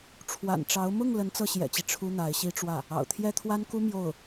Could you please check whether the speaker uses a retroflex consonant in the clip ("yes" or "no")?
yes